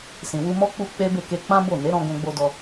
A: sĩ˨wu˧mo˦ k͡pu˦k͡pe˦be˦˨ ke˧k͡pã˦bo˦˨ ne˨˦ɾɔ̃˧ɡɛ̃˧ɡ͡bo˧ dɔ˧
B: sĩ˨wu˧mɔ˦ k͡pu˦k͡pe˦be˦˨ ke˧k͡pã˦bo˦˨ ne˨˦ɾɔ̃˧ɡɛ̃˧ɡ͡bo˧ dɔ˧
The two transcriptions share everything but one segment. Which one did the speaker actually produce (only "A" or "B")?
B